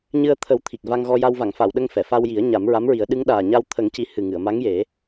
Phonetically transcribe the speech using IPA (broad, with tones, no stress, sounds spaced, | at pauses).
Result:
ɲ ɨ˧ ə̯ t̪ʰ ə˨˩˦ w t̪ʰ i˨˩ k̚ v a˧ ŋ ɣ ɔ˧ j a˧ w v a˨˩˨ ŋ f a˨˩˨ w ɗ ə˧ ŋ f ɛ˨˩˨ f a˧ w j i˨˩˦ ə̯ ɲ a˨˩˦ m ɹ a˧˥ m ɹ i˨˩˦ ə̯ ɗ ɨ˧˥ ŋ ɗ aː˨˩ ɲ a˧ w t̪ʰ ə˨˩˦ ŋ c i˨˩ h ɨ˨˩ ŋ ɨ˨˩˨ ə̯ m a˧˥ ŋ j e˨˩˦